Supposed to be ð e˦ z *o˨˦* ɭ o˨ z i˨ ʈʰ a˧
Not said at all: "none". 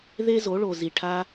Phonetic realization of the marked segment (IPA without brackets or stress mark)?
o˨˦